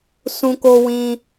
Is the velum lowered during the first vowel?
yes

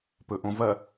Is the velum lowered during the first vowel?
no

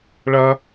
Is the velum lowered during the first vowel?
no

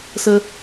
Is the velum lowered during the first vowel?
no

